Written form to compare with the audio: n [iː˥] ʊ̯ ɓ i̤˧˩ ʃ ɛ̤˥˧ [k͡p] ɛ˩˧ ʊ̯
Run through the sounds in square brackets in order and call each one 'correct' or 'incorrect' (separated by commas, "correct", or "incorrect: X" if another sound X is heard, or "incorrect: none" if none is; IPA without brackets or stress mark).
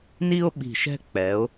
incorrect: i˥, correct